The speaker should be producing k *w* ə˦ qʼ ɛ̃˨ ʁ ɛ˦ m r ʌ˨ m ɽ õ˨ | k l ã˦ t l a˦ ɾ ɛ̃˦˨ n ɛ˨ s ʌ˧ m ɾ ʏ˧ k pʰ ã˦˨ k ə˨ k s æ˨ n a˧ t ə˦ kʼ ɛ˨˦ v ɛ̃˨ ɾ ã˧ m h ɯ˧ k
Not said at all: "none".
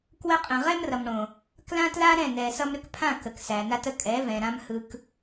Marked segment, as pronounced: w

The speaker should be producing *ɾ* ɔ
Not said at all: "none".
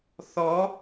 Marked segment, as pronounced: θ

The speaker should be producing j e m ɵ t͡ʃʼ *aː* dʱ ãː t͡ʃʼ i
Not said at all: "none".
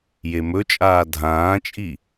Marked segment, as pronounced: aː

